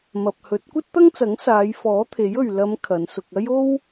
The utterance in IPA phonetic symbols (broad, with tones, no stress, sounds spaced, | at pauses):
m ɐ˨ p̚ h ɵ˨˥ t̚ kʷ ɐ˥ t̚ t̪ ɐ˥ ŋ t͡s ɐ˨˥ ŋ s aː˨˧ j f ɔː˨˥ t̪ʰ e˨˥ j ɵ˨ ɥ l ɐ˨˧ m kʰ ɐ˨˧ n s ʊ˧ k̚ ɐ˥ j o˥ w